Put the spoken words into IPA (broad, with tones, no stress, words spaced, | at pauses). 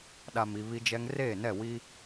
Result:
ɗa˨mi˨ βi˦d͡ʒɛ˦ŋ reː˦˨nɛ˦˨wi˦